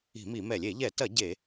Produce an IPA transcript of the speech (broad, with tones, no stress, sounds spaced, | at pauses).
i̤˧˩˧ m i˧˩˧ m ɛ˧˩˧ lʲ e˧˩˧ ʎ ɛ˧˩˧ t ɐ˧˩˧ ɟ e˧˩˧